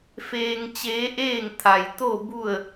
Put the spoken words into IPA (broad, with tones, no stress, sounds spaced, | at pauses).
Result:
f eː˧ ŋ t͡ɕ eː˧˥ ʔ eː˥˨ ŋ t̪ʰ a˩ j t̪ o˥˨ b u˥˨ ə̯